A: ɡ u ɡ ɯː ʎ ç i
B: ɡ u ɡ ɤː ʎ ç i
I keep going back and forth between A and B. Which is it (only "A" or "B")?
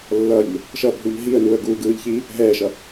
A